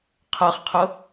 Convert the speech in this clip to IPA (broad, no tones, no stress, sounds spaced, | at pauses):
qʰ ɜ χ qʰ ʊ